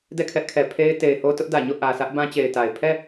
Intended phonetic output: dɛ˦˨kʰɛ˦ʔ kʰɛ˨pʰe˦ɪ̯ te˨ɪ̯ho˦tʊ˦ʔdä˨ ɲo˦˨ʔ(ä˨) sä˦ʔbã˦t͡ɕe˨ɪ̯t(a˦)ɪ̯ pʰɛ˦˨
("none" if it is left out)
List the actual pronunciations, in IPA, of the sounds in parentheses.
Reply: ä˨, a˨

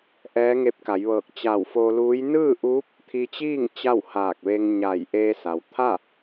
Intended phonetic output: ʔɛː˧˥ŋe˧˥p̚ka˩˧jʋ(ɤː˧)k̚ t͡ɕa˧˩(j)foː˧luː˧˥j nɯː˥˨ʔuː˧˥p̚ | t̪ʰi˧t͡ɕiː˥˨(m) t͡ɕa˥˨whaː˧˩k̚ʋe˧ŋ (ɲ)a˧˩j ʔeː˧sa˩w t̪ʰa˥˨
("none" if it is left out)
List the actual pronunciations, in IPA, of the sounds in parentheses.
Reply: ɤː˧˩, w, ŋ, ɲ

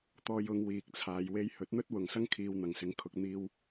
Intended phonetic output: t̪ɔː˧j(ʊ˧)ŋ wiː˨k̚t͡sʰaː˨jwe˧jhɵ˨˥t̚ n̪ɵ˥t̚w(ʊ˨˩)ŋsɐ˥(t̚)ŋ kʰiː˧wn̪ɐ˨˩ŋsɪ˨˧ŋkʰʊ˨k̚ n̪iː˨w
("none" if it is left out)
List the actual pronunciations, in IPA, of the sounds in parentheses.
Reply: ʊ˨˧, ʊ˨˩, none

